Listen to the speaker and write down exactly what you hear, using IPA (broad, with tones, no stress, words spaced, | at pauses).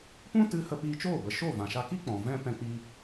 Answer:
pũ˦ tɨ˦ hə˧piː˧t͡ʃoː˦˨bə˨ ʃo˦˨ vã˨ʃa˧ki˦ k͡pɔ̃˨ vɛ̃˦ pɛ̃˧k͡pi˧